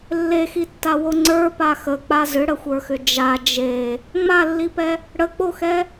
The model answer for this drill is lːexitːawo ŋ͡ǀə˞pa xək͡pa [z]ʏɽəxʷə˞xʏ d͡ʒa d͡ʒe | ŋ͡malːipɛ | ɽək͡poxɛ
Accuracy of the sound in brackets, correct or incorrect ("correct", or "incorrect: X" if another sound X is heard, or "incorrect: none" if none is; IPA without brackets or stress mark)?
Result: correct